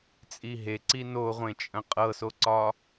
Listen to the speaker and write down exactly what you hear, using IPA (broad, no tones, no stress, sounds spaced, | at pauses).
t͡sʼ i ɦ e ǀ i n o ʁʷ ẽ t͡ʃʼ ə̃ qʼ ɤ s o ǀ ɒ